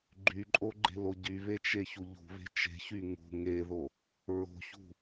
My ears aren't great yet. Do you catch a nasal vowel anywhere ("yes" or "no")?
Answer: no